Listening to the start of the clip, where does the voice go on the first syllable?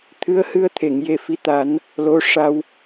rising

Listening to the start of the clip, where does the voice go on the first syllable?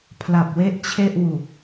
low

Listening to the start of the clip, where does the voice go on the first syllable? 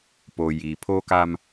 low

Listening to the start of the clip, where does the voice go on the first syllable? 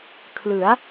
rising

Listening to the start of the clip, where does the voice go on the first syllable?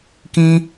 high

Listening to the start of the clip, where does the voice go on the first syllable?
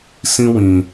high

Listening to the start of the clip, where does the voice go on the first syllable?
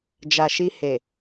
low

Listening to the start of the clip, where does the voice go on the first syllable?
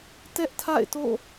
high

